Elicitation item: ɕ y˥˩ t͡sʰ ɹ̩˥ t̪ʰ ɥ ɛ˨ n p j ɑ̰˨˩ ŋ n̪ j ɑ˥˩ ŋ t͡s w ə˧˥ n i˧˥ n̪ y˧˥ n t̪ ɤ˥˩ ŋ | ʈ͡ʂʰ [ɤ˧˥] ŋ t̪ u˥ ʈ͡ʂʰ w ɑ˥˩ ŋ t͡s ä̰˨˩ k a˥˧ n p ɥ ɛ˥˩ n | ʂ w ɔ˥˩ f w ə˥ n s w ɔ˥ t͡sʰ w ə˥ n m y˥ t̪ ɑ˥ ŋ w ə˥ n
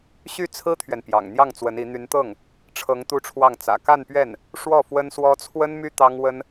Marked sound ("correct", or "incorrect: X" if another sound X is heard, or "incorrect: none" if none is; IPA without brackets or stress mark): correct